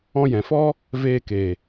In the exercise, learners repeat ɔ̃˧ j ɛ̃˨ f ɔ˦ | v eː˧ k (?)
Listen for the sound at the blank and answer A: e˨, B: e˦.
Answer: A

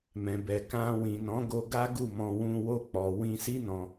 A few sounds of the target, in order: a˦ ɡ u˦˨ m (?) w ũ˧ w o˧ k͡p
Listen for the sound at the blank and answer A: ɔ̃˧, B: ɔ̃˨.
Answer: A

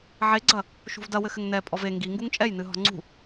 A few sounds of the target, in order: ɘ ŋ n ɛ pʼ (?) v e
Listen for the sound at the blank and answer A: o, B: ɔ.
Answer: B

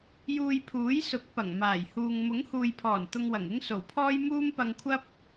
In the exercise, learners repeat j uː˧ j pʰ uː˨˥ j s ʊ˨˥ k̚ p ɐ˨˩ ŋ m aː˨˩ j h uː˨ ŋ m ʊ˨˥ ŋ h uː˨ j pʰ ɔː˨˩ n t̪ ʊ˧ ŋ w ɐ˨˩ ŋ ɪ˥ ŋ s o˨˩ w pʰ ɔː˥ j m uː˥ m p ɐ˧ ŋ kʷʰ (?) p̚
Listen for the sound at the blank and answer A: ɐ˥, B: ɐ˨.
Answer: A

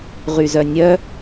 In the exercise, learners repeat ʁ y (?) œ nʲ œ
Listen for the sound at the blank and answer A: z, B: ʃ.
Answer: A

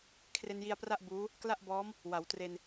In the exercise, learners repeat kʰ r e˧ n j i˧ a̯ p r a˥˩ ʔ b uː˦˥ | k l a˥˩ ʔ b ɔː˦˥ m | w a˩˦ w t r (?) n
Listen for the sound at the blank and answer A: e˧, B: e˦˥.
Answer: A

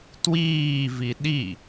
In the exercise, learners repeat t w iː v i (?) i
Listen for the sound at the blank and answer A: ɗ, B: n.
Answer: A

